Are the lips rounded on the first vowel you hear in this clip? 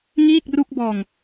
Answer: no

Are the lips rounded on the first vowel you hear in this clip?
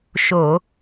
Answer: yes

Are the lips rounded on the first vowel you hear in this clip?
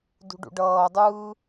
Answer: yes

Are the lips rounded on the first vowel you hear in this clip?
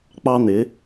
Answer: no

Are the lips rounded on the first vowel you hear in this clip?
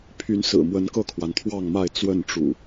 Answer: yes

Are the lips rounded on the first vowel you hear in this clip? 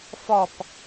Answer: yes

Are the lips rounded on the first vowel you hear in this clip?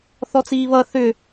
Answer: yes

